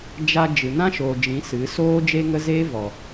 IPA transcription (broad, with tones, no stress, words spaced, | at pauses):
d͡ʒa˧ d͡ʒɨ˨nã˦ ʃoː˨d͡ʒĩ˨˦ sɨ˨˦soː˦ d͡ʒe˦ŋə˦ zeː˦vɔ˨